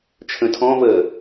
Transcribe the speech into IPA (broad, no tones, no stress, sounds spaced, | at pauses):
t͡ʃʰ ə̃ tʰ ɔ̃ v əː